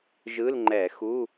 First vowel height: high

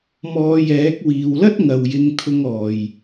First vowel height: mid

